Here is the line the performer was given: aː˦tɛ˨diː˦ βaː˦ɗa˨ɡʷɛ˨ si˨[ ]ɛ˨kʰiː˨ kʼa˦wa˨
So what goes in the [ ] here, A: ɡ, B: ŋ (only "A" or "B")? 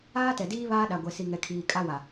B